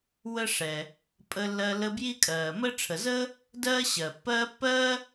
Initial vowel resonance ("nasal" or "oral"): oral